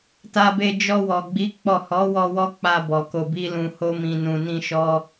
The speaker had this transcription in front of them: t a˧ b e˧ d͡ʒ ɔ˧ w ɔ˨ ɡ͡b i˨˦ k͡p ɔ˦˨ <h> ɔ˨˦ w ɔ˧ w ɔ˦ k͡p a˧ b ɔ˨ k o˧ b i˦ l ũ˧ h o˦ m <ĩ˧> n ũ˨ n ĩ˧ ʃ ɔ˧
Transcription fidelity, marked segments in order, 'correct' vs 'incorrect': correct, correct

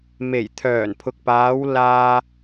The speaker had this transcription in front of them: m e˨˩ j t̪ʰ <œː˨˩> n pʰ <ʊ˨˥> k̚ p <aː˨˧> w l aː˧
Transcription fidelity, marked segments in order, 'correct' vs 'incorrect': correct, incorrect, correct

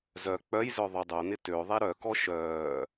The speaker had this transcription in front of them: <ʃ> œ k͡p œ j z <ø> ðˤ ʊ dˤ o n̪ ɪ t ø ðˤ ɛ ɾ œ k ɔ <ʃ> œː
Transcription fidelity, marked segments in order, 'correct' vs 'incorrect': incorrect, incorrect, correct

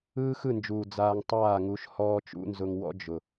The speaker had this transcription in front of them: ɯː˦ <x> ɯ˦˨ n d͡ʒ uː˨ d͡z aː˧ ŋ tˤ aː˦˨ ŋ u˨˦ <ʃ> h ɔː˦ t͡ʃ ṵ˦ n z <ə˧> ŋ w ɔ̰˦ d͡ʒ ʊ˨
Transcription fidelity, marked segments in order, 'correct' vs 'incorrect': correct, correct, incorrect

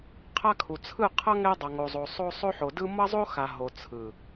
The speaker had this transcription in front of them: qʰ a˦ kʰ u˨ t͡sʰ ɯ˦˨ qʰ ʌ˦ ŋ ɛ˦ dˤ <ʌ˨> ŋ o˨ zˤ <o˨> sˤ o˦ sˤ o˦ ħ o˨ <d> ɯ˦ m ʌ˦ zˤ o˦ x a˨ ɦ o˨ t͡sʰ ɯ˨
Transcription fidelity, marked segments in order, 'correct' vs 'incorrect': correct, correct, correct

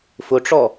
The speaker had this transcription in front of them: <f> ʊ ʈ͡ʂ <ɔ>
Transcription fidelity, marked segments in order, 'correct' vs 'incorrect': correct, correct

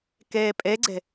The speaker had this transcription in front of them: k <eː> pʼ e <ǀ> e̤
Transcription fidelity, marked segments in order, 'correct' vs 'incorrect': correct, incorrect

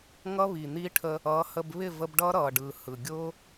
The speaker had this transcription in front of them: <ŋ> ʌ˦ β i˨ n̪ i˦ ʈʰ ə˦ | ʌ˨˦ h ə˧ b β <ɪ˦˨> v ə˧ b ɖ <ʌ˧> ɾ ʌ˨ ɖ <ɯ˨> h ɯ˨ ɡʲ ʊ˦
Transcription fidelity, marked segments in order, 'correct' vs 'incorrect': correct, correct, incorrect, correct

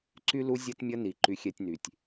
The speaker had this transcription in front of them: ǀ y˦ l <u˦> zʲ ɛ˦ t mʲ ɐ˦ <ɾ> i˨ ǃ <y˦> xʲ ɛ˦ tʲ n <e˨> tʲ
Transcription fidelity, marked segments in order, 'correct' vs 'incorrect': correct, incorrect, correct, incorrect

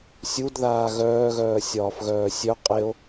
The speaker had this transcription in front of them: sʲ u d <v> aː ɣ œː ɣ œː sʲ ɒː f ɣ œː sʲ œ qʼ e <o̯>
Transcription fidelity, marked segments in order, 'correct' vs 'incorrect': incorrect, correct

